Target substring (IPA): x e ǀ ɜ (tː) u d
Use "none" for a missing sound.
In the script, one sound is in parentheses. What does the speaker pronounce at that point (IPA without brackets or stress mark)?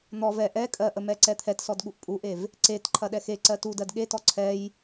t